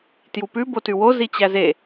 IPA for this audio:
t j u p ʉ b o t ʉ w o z i t͡ɕ æ z e

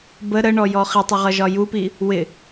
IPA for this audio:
b ə ɾ ə ɳ ɔ j ɔ χ i tˤ ʌ ʁ ʌ ʒ ɒ j u p i | w ɪ

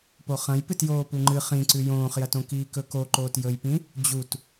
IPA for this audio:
p o χ ɐ̃ j p ɨ t j oː p u ŋ͡ǃ ɨ χ ĩ ǀ ʉ j õː χ j ɐ t õ k iː k ɵ k o ǃ oː t j ɵ j p ĩ | d͡ʑ u t

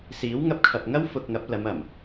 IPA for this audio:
s iː˨˥ w ŋ ɐ˧ p̚ kʰ ɐ˨ p̚ ŋ ɐ˥ w f ʊ˧ k̚ ŋ ɐ˨˥ p̚ l ɐ˨˧ m ɐ˨˩ m

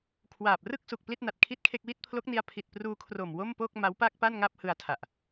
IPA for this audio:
kʰ w aː˨˩ p̚ r ɯ˥˩ k̚ s u˨˩ k̚ p l i˥˩ t̚ n a˨˩ t̚ kʰ i˥˩ t̚ kʰ e˥˩ k̚ w i˥˩ t̚ pʰ l o˦˥ k̚ n i˧ a̯ pʰ i˨˩ t̚ p r uː˧ kʰ r o˨˩ m w o˥˩ m p o˥˩ k̚ m a˦˥ w p a˥˩ k̚ p a˥˩ n ŋ a˥˩ p̚ h ɯ˧ a̯ tʰ a˨˩ ʔ

